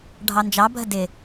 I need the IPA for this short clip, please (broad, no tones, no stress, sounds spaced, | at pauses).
ɖʱ ɑ n d͡ʒ ɑ bʱ ə d ɪ